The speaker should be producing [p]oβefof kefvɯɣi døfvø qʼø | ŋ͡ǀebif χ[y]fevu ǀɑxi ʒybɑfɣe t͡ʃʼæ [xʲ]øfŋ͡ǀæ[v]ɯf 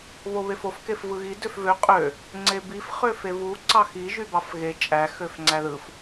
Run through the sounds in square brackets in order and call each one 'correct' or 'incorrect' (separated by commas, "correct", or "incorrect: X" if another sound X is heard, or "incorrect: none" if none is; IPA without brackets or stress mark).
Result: incorrect: β, incorrect: ø, incorrect: x, incorrect: ð